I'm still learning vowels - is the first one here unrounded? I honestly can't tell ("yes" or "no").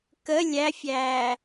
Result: yes